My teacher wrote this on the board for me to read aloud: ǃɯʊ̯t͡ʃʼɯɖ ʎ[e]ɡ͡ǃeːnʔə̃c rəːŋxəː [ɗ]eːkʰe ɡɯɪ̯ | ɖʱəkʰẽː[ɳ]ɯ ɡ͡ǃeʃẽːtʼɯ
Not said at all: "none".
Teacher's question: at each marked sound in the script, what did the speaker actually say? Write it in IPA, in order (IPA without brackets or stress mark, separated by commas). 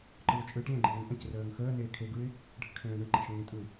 ẽ, n, ɳ